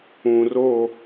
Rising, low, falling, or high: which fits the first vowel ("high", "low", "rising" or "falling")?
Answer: low